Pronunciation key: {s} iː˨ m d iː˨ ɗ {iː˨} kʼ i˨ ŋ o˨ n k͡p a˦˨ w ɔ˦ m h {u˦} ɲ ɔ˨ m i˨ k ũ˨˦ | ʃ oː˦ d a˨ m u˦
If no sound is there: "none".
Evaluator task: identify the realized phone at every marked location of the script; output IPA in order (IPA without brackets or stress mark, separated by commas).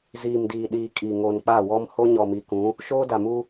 z, iː˨, o˦